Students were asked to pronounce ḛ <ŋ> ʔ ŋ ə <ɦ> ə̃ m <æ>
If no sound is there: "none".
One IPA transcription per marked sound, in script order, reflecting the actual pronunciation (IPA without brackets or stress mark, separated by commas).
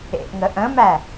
none, ʔ, æ